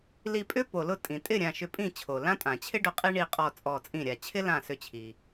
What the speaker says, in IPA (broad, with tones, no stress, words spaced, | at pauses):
li˧˩pʼʏ˥ po˩lʊ˥˩ tʼĩ˩ tʼɪ˥˩ ɾʲã˧˩ʃʏ˧˩pʼĩ˥˩ t͡ɕʰo˩lã˥tʼã˩ t͡ɕʰɪ˥ɖʊ˧˩ qʼi˥ɳi˧˩qʼɔ˧˩ t͡sʼɔ˧˩t͡sʼĩ˥˩ɾʲa˧˩ t͡ɕʰɪ˥lã˧˩sʏ˧˩t͡ɕʰi˩